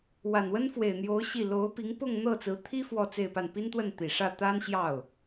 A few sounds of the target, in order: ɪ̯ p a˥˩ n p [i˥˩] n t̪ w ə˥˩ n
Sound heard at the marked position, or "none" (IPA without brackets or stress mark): i˥